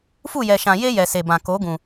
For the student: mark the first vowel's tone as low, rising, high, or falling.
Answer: falling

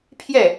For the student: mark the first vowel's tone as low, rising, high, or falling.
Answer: falling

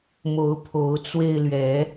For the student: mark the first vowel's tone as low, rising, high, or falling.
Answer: rising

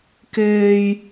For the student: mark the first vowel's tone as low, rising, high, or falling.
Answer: low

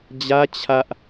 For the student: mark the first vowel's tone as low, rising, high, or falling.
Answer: high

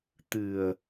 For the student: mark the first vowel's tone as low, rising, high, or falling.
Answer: low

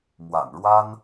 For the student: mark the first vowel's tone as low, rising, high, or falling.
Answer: low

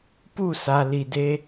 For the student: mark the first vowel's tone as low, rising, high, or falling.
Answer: falling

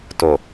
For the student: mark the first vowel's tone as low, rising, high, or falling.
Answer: low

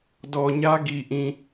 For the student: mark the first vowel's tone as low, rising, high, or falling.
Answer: low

